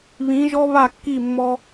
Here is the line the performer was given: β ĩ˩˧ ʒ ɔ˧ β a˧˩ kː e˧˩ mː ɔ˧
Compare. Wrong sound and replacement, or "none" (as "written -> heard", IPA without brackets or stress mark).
e˧˩ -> i˧˩